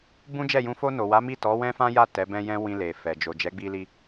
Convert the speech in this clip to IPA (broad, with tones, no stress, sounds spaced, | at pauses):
b ũ˦ d͡ʒ ɛ˦˨ j ũ˧ f o˧ n o˨ w a˨˦ m i˦˨ t ɔ˨˦ w ɛ̃˦ f ã˦ j a˦˨ t ɛ˨˦ b ɛ̃˦ j ɛ̃˦ w ĩ˧ l e˨ f ɛ˨ d͡ʒ o˨ d͡ʒ ɛ˨˦ ɡ͡b i˧ l i˧